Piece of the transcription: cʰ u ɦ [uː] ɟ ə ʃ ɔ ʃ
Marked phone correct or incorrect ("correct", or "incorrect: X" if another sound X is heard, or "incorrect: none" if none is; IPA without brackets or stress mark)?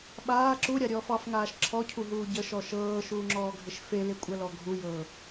correct